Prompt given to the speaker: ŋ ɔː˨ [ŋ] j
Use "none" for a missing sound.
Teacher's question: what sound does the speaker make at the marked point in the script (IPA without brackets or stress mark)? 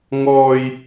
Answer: none